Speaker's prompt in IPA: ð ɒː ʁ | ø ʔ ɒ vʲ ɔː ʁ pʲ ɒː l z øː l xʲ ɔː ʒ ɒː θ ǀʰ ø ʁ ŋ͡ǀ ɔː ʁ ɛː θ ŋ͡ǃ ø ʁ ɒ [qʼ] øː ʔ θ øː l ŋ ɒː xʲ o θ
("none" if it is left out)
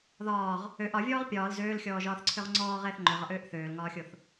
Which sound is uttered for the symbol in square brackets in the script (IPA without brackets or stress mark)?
ʔ